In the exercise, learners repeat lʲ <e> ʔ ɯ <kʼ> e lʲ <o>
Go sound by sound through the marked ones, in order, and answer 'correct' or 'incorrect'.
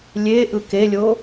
correct, incorrect: k, correct

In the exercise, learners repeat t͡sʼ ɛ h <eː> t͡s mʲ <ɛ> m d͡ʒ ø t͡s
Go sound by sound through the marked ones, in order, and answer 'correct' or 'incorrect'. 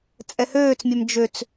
incorrect: øː, incorrect: æ

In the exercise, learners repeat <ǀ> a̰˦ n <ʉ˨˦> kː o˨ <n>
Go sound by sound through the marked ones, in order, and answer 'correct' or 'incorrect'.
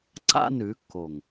correct, correct, incorrect: ŋ

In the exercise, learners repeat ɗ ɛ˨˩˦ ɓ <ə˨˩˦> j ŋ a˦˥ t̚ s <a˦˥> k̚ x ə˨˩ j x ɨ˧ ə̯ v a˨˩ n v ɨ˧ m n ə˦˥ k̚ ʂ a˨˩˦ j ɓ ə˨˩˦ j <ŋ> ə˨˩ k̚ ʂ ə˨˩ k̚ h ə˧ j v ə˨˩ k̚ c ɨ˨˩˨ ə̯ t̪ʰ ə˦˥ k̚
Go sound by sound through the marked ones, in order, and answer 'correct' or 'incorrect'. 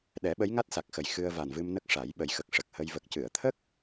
incorrect: ə˧˥, incorrect: a˨˩, incorrect: x

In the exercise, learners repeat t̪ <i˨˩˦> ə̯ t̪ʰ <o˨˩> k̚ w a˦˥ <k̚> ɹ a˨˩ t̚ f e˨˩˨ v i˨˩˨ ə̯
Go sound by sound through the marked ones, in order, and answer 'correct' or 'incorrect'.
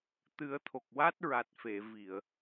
incorrect: ɨ˨˩˦, correct, incorrect: t̚

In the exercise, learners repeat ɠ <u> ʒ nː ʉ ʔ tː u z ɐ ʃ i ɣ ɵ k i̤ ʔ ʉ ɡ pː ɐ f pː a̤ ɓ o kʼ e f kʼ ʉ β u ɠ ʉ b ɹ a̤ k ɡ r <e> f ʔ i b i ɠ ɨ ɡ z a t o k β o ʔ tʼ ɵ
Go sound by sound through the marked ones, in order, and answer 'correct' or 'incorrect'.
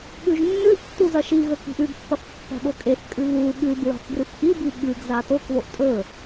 incorrect: ʉ, incorrect: ɨ

